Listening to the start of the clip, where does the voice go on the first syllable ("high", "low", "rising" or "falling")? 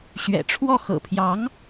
low